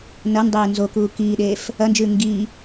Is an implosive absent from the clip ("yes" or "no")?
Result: no